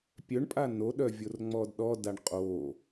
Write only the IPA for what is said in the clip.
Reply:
pʲœɳpʼa noɗœvʲor ŋ͡mɔdɗɔ daɳqʼo

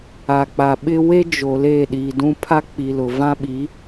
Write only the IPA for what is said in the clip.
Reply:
a˨k͡pa˨ɓɪ˦ we˦d͡ʒo˨ le˦˨ ɗi˨dũ˦ pʰa˦k͡pi˨lʊ˨ vã˦ɓi˨˦

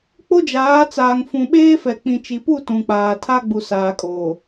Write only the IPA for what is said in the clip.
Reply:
k͡po˦d͡ʒaː˨˦t͡saː˨ŋ fũ˨ɓeː˦fɛ˨ k͡pĩ˨t͡ʃi˨pu˦˨ tũ˨k͡paː˨ tʰa˦ɡ͡bu˨ saː˨kʼoː˨

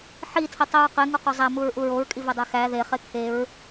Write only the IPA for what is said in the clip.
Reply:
ħitʰitˤiɹ qeŋuqo zˤæmuɹʔu ɹoɹkʼivedˤæ xæ ðeχe kʰeɹ

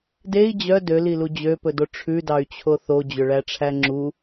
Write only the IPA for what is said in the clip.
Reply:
dei̯ d͡ʑœ dølilu d͡ʑøpɵdo ʈ͡ʂʰʉdɑy̯t͡ɕʰo θod͡ʑɵɭæʈ͡ʂʰæ ŋ͡ǁu

